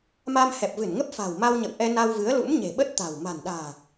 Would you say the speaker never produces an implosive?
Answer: no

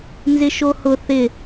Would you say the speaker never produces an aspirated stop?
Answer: yes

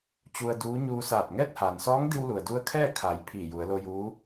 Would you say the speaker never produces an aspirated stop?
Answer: no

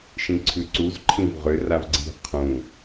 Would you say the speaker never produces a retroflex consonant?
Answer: yes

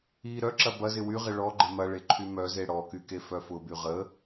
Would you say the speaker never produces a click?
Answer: no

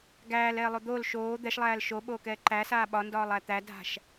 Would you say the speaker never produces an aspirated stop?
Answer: yes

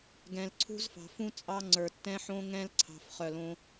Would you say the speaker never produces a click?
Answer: no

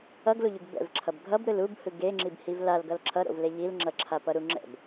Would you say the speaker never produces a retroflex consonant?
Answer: yes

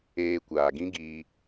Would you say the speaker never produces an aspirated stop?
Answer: yes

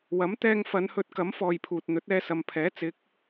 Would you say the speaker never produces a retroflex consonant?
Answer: yes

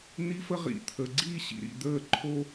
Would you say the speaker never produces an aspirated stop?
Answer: no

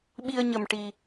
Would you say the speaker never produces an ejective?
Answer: yes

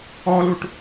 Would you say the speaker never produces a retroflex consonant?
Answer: no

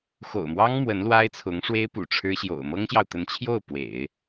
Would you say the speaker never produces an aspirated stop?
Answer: no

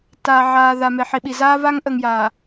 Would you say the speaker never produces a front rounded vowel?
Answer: yes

